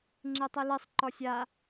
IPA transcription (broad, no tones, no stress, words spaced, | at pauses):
ŋ͡ǁitˤilisˤǃɔ sʲa